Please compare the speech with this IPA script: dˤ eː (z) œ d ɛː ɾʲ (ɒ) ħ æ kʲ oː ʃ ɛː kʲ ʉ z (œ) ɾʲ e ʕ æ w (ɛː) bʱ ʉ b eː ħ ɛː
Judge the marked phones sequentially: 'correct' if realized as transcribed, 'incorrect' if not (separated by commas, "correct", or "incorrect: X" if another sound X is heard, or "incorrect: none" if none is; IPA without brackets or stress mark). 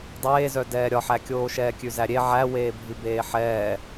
correct, correct, incorrect: æ, incorrect: eː